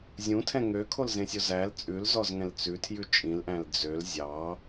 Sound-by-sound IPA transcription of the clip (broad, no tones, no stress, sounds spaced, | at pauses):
zʲ ũ tʰ ɛ̃ ŋ ø kʰ o l z ẽ sʲ o z æ l t͡sʼ ʉ l z ɔ z ŋ ɛ̃ l t͡s ʉ tʰ j ʉ t͡ʃʼ ĩ l ʔ æ̃ l d͡z ø l zʲ ɑ